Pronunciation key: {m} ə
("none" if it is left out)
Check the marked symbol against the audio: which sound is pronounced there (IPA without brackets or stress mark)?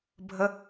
bʱ